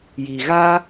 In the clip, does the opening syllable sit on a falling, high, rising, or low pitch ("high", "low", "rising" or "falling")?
low